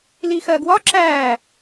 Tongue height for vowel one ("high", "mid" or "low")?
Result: high